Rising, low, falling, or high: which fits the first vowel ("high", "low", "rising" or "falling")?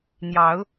rising